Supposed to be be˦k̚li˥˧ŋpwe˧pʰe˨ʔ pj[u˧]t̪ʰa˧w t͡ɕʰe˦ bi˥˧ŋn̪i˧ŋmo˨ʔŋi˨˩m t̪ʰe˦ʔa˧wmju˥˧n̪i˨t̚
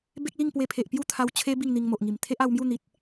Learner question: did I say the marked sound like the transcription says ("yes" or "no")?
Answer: no